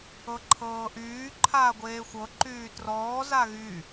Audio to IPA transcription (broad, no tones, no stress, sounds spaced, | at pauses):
ɤ ǃʰ ɤː ʔ yː ǃʰ aː ɡʷ eː xʷ ɤ ǃ yː t r ɔː z a ɣ y